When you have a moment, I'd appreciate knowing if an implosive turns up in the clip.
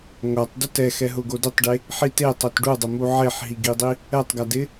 no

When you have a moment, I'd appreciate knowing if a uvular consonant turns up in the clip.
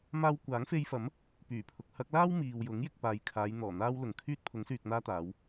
no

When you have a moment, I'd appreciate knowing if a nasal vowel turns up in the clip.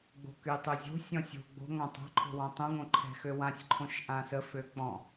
yes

